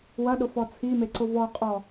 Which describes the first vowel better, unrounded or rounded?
unrounded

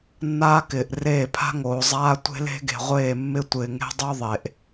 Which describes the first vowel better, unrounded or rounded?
unrounded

